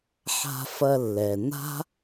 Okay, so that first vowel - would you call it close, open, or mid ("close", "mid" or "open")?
open